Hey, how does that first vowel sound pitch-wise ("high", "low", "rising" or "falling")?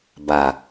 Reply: low